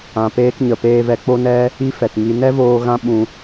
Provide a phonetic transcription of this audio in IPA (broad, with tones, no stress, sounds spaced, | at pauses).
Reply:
ã˨ p eː˧ k ɲ ə˨ p eː˧ v ɛ˧ k͡p o˧ n ɛ˧ | i˦ f ɛ˨ t ŋ i˧ n ɛ˦ v oː˧ ɣ ã˦ ɓ ũ˧